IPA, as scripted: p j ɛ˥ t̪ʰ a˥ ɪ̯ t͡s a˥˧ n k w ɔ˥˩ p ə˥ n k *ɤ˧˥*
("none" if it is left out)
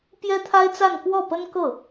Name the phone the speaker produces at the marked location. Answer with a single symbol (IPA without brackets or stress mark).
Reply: ɤ˥˩